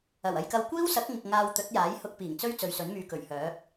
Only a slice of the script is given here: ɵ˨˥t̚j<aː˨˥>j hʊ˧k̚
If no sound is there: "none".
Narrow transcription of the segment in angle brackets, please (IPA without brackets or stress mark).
aː˨˥